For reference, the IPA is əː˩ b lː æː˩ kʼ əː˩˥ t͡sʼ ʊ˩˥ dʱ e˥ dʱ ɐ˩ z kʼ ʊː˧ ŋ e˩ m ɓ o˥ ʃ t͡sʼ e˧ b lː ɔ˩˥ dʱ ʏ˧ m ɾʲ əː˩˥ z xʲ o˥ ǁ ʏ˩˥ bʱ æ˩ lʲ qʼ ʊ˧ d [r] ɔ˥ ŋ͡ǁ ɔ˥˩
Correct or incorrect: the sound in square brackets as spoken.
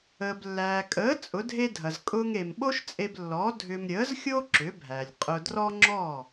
correct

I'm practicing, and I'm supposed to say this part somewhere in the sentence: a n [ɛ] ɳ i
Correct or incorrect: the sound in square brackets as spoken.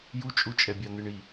incorrect: ɨ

